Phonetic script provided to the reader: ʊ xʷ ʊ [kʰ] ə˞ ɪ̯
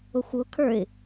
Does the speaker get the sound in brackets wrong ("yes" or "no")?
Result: no